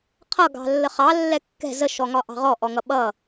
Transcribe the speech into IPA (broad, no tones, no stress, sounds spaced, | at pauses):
qʰ ʌ ɡ ɑ̤ lː ə χ ɑ lː ɛ kː ɛ̤ z ə ʃ ɔ ŋ ɒ ʔ ɑ̤ ʁ ɔ ʔ ɔ ŋ ʌ ɓ ʌ